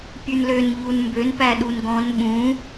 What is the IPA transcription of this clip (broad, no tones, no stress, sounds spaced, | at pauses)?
pʲ ʉ n l ø n ʎ u n m b ø n p æ ɗ u n ɡ ɔ̃ n ɓ ũ